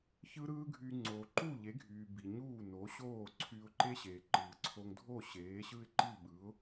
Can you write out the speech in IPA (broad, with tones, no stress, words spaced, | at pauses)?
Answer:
çɯ˥ɾɯː˥ɡʱyː˧ ŋ͡ǀoː˩ǃu˥˩ʎe˩˥ɡʱyː˩ bi˩ ɲuː˥˩no˩˥ɕoː˥˩ǀʰyː˧ʊ̯ ǃe˥ɕeː˩ǃɯː˩ ǀʰo˧ŋ dʱo˥˩ ɕeː˩˥ɕɯ˥ɪ̯ǃi˥˩ ɓɯ˩˥ʊ̯